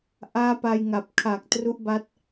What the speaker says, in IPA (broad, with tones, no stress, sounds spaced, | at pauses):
ʔ aː˦˥ p a˧ j ŋ a˨˩ p̚ kʰ a˨˩ k̚ t r u˦˥ ʔ b a˦˥ t̚